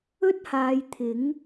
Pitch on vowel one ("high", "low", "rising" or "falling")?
high